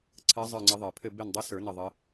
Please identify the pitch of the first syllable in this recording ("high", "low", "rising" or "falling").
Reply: rising